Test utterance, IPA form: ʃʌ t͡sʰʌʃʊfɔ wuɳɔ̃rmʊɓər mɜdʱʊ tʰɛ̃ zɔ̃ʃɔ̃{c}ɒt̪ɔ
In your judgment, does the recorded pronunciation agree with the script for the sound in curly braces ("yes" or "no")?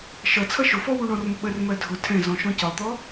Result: yes